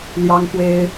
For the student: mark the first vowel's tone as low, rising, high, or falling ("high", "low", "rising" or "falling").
high